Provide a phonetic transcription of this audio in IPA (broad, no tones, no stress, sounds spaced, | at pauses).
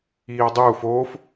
iː o̯ dˤ uː f oː f